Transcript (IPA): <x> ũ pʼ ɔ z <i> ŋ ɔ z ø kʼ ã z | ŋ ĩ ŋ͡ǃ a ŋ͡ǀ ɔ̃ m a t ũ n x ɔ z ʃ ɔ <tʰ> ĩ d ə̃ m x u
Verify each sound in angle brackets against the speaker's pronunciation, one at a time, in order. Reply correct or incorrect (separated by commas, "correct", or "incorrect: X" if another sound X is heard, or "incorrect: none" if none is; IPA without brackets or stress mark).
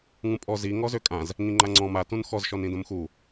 incorrect: ŋ, correct, incorrect: n